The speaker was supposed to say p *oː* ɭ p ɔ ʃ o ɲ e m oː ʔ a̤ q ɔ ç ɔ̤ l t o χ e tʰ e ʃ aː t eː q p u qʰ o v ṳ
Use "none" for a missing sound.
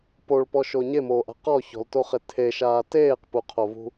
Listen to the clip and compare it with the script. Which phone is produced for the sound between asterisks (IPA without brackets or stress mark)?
o